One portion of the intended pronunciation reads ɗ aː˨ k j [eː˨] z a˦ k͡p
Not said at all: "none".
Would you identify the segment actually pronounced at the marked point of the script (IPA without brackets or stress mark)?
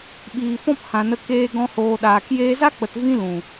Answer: eː˧